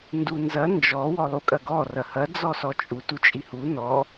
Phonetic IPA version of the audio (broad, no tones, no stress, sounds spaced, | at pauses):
n d u n z ɐ n d͡ʒ ɔ w ɔ lˠ u kʼ ɐ ɡ ɔ r ɐ h ɐ d͡z ɔ s ɔ t͡ʃʼ u t u t͡ʃʼ i h u n ɔ